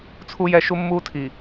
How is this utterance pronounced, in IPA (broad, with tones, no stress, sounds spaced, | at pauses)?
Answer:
t͡sʰ u˦ j ɛ˦ ʃ u˦ mː uː˦ tʰ i˨